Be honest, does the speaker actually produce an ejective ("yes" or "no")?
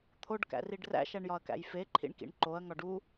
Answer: no